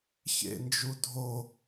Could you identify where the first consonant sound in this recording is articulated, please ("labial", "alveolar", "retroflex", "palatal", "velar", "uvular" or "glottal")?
palatal